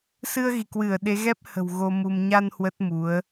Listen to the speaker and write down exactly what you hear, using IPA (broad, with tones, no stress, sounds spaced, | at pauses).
s ɨ˧ ə̯ ɣ i˧˩ k w ɨ˧˩ ə̯ ɗ e˨˦ ɣ ɛ˦˥ p̚ h ə̤˨˩ w ɣ o˧ m u˧ m ɲ a˧ n h w ə˦˥ t̚ m u˨˦ ə̯